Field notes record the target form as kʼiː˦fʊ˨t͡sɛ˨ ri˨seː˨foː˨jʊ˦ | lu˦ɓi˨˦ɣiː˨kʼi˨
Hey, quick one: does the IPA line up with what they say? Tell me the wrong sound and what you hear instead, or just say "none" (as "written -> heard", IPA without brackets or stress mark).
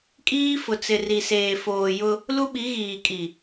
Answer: ɛ˨ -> ɪ˨